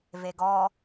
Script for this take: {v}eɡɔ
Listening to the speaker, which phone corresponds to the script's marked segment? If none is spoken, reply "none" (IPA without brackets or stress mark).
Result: v